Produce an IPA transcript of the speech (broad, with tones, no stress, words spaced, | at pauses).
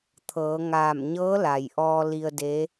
t̪ʰɤː˩˧ ŋaː˧˩m ɲɤː˧˥la˩jʔɔː˧ li˧ə̯de˧˥